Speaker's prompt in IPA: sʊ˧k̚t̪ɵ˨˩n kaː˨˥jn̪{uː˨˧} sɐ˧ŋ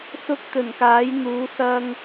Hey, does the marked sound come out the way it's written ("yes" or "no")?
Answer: yes